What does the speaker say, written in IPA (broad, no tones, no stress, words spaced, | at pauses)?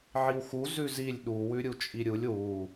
ʕiwxu zʉzilʲ ɗu wʉɾʲut͡ʃʼiɾʲulʲ wu